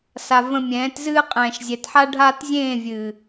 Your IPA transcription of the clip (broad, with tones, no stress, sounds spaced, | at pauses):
s a˨ v ə̃˨ mʲ ɛ̃ː˨˦ t z ɨː˦ qʼ ɛ̃ː˨ ʃ zʲ ɛ˨ t ħ a˦ ɖʱ aː˦ t zʲ ẽː˦˨ vʲ ɨː˨